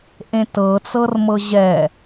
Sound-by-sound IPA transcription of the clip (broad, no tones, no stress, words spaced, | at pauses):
ʔẽtɤt͡sɤrmɤ ʑɛ